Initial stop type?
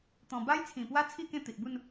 plain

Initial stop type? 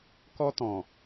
plain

